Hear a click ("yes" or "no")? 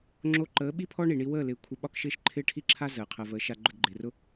yes